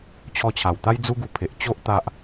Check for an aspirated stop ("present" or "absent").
present